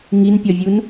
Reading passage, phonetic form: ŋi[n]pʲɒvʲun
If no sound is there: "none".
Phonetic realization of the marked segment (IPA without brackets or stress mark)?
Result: n